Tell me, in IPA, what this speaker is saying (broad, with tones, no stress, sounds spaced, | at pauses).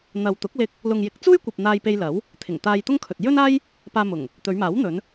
n̪ ɐ˨ w t̪ ʊ˨˥ k̚ l ɪ˧ k̚ | l ʊ˨ ŋ j ɪ˨˥ k̚ t͡s uː˥ j kʷ ɐ˨ p̚ n̪ aː˧ j p e˧ j l ɐ˨˥ w | t̪ʰ ɪ˨˩ ŋ t̪ aː˧ j t̪ ʊ˥ ŋ kʰ ɵ˨ t̚ j ɵ˥ n aː˥ j | p aː˧ m ʊ˨˩ ŋ | t̪ ɵ˨˧ ɥ m aː˨˥ w n̪ ɵ˨˧ n